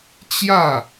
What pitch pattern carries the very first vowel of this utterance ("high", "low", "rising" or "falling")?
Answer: falling